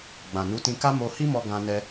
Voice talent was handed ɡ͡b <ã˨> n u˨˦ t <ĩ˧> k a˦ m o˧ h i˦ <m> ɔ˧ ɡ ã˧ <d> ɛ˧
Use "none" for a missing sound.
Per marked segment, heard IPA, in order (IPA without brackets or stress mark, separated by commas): ã˨, ĩ˧, m, n